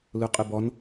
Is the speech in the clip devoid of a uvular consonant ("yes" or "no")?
no